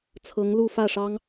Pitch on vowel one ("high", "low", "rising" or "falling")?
rising